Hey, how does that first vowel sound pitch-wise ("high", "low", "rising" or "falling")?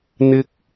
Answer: high